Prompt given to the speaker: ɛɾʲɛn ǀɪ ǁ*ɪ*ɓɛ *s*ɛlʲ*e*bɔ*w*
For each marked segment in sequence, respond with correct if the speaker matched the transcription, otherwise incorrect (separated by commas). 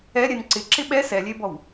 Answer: correct, correct, correct, correct